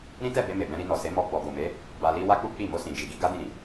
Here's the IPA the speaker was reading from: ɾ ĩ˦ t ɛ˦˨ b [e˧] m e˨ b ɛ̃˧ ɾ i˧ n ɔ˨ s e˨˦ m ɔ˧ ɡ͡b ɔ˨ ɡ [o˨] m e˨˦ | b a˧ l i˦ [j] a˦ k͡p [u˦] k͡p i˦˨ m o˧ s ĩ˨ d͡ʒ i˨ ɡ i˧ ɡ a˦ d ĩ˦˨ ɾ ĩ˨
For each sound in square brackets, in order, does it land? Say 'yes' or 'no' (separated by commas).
yes, yes, no, yes